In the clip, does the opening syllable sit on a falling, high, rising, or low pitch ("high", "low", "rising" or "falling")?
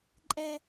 low